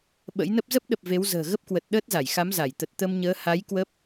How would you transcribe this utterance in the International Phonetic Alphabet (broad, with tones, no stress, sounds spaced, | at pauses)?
ɓ ə̰˧˥ j n ə˦˥ p̚ z ə˦˥ p̚ ɗ ə˨˩ p̚ v e˨˦ w z ə̤ː˨˩ ɣ ə˦˥ p̚ k w ə˨˩ t̚ ɗ əː˦˥ t̚ z a˧˩ j x a˨˦ m z a˧˩ j t̪ ə˨˩ t̚ t̪ ə˧ m ɲ əː˨˦ h a˨˦ j k w ə˦˥ p̚